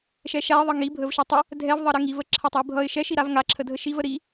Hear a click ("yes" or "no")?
yes